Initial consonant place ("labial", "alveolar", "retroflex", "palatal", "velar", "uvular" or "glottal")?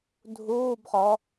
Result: alveolar